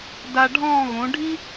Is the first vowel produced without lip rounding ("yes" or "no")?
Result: yes